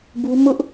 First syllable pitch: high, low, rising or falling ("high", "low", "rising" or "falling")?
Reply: high